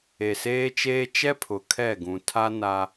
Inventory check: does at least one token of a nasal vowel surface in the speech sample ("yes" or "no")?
yes